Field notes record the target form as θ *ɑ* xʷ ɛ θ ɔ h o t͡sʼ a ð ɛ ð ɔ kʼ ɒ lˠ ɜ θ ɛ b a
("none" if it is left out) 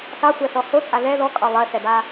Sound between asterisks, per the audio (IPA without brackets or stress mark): ɑ